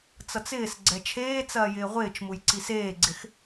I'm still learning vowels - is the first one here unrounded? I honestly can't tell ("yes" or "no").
yes